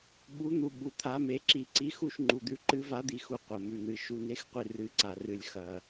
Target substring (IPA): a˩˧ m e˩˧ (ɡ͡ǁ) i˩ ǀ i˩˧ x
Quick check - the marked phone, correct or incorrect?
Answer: incorrect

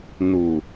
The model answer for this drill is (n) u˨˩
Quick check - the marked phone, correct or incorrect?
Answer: correct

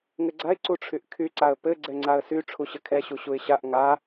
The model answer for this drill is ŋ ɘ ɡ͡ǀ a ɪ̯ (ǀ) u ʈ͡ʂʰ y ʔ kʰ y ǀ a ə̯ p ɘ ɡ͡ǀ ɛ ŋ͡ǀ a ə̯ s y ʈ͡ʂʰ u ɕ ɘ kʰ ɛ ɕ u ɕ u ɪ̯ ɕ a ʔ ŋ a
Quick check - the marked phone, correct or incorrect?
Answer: correct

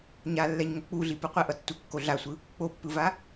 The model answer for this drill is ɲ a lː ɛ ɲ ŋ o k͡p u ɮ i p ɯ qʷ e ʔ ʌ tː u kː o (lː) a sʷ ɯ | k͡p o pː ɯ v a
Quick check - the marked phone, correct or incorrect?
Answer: incorrect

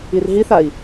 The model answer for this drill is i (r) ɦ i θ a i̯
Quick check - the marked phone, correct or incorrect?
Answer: correct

